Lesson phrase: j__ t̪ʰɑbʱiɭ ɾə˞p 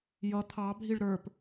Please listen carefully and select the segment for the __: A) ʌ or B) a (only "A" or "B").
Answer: A